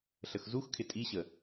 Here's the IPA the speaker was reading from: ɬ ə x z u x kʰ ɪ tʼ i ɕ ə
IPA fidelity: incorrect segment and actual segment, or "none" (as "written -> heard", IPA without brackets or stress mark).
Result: none